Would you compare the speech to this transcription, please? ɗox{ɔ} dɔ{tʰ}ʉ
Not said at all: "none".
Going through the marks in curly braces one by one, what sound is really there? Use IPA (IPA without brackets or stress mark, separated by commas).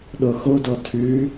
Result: o, tʰ